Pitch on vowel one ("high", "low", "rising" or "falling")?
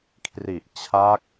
low